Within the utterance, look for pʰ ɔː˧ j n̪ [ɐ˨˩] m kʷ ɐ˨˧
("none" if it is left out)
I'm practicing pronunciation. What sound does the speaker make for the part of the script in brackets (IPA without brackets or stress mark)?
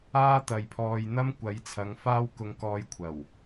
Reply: ɐ˥